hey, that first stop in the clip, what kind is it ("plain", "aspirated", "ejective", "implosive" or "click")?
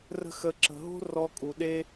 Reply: click